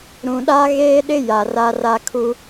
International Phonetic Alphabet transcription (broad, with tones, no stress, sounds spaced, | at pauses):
ɾ ũ˨ ɗ a˦ ɣ eː˦ ɗ ɪ˦ j a˨ r a˦ r a˦ kʰ u˦